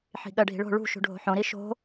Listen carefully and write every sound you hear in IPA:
ħi̤ɠɜɖʱi̤ɭo̤ ɭṳ ʃṳɖʱo̤ħõ ɾiʃo̤

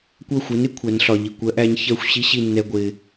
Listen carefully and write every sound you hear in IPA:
kʷʌ˦˨xʷɪ˨˦nɪ˦ kʷʰæ˨˦nɬɒ˨ʎi˨ kʷɜ˨˦ʔæ˨˦ɲçɜ˦˨xʷ ɕi˦ɕi˦˨ nːɛ˦ ɡʷɪ˨

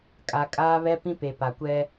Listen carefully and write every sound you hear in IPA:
kʼa˨kʼaː˦βɛ˦ pĩ˦pe˨pa˨kʷɛ˦

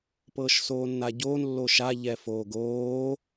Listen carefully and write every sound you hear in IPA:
pɤːʃsoːnːaɟoːn lːoʃa ʎɛfoːɡoː

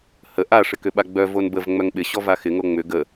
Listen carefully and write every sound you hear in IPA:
hə ʔa ʂɪkʏɓaɡ͡bœ vonbəv ŋ͡mœŋɓɪ ɕɔvaxɪ ŋoŋ͡mʏ ɡə

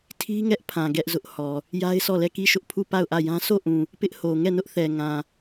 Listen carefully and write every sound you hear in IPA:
tʰi˦ ŋɛ˦ʔpʰã˨ ɡɛ˦ʔzʊ˦ʔhɔ˨ | ja˦ɪ̯sʰɔ˦˨lɛ˦˨ ki˦˨ʃʊ˦ʔ pʰu˦˨ pa˦˨ʊ̯ʔä˦˨jã˦ so˦˨ʔũ˨ | pɪ˦ʔho˨ ŋɛ˦˨nʊ˦ʔθɛ˨ ŋã˨

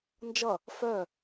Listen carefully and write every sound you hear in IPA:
nd͡ʒʌ | fœ

